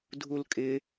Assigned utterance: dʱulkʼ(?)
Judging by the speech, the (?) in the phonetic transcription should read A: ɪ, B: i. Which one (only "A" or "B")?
A